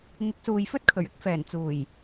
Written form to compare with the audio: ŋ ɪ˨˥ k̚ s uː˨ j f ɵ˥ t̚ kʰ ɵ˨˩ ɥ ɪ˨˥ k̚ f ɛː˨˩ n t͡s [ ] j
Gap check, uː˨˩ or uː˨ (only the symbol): uː˨˩